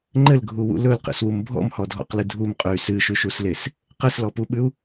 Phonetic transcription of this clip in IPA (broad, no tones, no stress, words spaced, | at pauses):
ŋ͡ǃɘlɡʱuwṵ lɵlqḛswum bʱɔ̰mhɔdʱɔ̰qlɨ dʱumqʼʉy̯ sɨʃʉʃusles | qɘslɔpuɓʉu̯